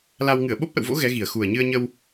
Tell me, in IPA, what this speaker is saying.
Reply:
la˧w ŋɨ˧˩ə̯ɓo˦˥p̚ʔə̰˧˨wvo̰˧˥ ɣɛ˨˦ɣi˨˩ə̯ xu˨˩ə̯ɲɨ˧ə̯ɲə˧w

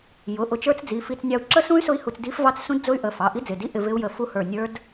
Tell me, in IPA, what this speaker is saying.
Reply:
jʊ˩˧˩ʔʊ˧t͡ʃə˞˦˥t͡sd͡zi˩˧˩ fi˧t͡s nʲɑ˧u̯ ǁə˦˥sũ˦˥y̯ sʊ˦˥i̯hu˧t͡sdi˦˥fvɑ˦˥t͡s sũ˦˥dd͡zʊ˦˥y̯ʔə˩˧˩ fɑ˩˧˩ʔi˦˥d͡zɪ˩˧˩di˦˥ ʔɪ˧vɪ˦˥u̯jə˧ fu˦˥hə˞˧ nʲə˞˦˥d

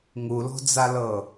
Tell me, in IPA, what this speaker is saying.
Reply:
ŋulɔ̤d͡zalɤ

